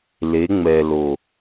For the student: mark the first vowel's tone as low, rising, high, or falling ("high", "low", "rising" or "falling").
rising